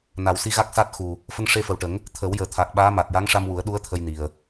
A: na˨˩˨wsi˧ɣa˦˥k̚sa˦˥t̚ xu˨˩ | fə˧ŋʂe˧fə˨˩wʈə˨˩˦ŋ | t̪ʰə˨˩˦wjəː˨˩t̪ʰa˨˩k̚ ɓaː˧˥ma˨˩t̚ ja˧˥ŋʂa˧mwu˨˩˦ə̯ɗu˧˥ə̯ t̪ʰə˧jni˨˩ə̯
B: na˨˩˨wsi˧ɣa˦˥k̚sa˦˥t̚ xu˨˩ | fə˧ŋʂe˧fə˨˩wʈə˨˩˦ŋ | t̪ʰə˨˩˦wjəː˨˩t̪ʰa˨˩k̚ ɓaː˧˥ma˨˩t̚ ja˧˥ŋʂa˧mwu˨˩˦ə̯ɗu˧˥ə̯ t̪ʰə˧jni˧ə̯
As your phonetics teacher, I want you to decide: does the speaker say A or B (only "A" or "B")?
A